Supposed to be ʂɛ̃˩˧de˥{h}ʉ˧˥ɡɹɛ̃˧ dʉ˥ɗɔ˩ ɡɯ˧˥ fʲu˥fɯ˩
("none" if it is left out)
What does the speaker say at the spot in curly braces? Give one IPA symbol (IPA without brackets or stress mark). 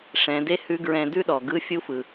h